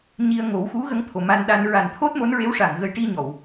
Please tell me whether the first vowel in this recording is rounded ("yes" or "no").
no